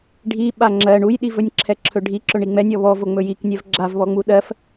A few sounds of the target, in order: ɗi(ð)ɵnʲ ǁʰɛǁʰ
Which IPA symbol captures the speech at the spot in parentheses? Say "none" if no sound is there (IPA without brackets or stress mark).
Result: v